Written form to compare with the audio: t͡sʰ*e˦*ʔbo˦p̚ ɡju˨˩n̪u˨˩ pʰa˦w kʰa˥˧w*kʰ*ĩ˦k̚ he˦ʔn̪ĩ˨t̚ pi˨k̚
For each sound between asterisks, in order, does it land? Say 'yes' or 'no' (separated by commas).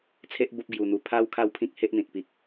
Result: yes, no